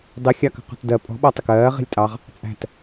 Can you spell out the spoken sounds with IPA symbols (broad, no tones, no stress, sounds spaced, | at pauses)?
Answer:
dˤ i xʲ ɑ k ə̤ q ɔ̤ t d ɜ pʼ ɔ̤ ɓ ɔ tˤ ə k ɜː ʁ i̤ lʲ tʼ ɑ ʁ | t͡sʼ æ̤ t